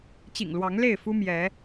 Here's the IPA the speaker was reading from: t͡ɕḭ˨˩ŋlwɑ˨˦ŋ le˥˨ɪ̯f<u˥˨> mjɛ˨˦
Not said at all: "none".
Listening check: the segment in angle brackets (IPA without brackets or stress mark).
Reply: u˦